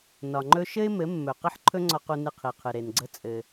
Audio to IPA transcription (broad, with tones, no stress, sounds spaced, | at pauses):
n ɒ˨ ŋ͡ǃ ɵ˦ ʃ ɘ˦ ɪ̯ m ɘ˨˦ mː ɵ˨ q ɘ˦ ħ ǃʰ ɵ˦ ŋ͡ǀ ɒ˧ q u˧ n ɨ˧ qʰ i˨ qʰ ɨ˨ ɾ e˨ n ɡ͡ǀ ə˦ t͡sʼ ɘ˧